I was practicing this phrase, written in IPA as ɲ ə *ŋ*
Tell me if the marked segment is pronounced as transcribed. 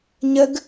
no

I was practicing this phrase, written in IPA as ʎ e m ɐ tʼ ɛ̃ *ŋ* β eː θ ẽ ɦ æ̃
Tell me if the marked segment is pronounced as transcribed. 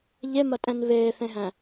no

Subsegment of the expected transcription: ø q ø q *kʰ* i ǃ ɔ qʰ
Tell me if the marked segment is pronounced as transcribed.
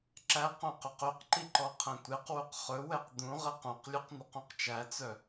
no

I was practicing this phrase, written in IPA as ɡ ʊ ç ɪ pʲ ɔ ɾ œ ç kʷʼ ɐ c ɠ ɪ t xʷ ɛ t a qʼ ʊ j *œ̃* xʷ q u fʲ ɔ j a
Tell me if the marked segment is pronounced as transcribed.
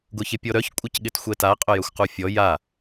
no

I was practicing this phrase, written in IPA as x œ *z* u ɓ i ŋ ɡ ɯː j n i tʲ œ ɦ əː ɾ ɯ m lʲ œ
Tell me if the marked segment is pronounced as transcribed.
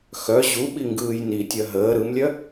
no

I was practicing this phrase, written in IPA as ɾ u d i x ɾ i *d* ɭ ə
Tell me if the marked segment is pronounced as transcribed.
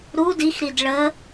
yes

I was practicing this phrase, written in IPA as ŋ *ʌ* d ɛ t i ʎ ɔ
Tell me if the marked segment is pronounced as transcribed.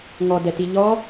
no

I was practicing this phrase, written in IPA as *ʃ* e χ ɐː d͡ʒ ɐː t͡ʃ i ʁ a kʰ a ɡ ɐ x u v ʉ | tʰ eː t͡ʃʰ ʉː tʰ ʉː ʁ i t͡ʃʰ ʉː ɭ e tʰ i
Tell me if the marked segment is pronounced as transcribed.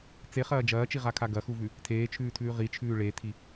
no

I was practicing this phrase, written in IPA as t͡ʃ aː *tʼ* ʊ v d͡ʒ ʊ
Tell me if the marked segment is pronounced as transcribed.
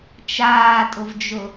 yes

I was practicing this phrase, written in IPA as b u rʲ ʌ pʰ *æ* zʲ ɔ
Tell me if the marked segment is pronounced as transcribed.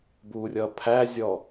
yes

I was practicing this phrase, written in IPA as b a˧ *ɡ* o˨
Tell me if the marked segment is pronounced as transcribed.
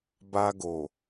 yes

